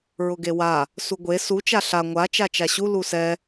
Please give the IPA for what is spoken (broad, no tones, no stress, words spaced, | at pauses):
ɹʊɡewa | suɡʷe su t͡ʃaɬa ŋʷa t͡ʃat͡ʃaɕu lusɛ